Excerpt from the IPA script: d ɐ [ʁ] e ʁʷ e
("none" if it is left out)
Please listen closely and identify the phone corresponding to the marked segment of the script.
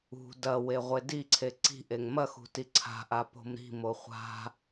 w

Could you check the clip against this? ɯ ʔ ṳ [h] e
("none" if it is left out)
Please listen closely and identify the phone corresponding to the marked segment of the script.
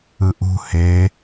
h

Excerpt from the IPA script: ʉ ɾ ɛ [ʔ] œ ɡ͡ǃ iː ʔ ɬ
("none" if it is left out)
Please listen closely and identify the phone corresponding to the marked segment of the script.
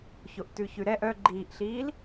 ʔ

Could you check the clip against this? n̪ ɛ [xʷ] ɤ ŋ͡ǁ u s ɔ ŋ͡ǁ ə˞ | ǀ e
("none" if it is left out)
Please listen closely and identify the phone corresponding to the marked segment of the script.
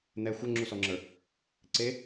xʷ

